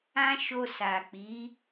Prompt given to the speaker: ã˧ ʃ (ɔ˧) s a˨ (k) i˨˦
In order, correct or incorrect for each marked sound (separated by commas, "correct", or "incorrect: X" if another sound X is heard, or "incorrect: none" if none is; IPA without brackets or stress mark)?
incorrect: o˧, incorrect: k͡p